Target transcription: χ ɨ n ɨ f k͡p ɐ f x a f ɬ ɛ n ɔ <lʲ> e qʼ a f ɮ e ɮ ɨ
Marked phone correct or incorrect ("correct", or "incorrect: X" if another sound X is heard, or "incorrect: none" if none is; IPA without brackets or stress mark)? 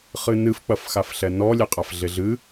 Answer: correct